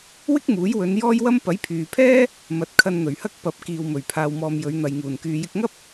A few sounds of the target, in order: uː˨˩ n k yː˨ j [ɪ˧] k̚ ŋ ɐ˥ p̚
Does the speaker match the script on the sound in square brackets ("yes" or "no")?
yes